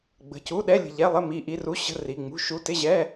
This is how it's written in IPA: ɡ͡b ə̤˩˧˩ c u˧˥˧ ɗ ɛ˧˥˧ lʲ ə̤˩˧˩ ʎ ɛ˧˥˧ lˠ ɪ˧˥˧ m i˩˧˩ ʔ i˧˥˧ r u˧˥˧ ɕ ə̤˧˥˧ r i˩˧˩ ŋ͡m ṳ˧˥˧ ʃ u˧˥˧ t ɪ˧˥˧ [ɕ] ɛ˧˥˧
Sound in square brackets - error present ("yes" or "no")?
yes